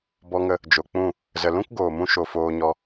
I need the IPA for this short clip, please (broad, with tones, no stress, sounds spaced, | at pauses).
b ɔ˧ ŋ ə˧ | d͡ʒ o˨ k͡p ũ˦˨ | z ə˨ l ũ˦ k ɡ oː˨ m ũ˧ ʃ o˧ f oː˧ ɲ ɔ˧